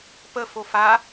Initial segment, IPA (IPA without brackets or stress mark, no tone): p